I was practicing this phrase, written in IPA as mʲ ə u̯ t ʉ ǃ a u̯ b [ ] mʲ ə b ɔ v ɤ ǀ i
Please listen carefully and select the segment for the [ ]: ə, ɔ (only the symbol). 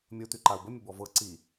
ə